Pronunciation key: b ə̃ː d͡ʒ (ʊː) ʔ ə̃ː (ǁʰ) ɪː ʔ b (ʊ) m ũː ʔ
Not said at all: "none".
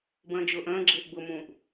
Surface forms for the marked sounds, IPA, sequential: ʊː, ɡ͡ǁ, ʊ

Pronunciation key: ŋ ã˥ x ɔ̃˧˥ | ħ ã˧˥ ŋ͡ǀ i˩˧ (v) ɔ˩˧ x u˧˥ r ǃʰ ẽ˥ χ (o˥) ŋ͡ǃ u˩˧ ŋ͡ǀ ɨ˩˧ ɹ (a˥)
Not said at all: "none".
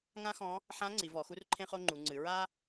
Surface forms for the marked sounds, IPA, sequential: v, o˥, a˥

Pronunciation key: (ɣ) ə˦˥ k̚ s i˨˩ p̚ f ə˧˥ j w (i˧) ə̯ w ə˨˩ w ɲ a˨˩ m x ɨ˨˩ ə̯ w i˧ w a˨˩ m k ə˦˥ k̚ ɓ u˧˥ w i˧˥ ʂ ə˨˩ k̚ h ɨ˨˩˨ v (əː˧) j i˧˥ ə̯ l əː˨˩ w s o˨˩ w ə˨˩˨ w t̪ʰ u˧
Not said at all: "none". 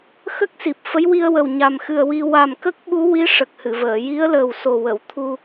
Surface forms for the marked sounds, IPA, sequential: x, i˧, əː˨˩˨

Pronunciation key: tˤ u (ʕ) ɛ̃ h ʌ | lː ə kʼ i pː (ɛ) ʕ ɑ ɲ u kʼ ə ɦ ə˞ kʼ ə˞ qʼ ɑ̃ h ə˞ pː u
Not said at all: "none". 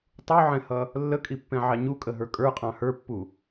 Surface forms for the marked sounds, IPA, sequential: ʕ, ɛ̃

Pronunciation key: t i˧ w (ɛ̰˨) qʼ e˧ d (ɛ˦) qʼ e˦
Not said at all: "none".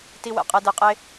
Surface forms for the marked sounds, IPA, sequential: ɛ̰˨, ɛ˧

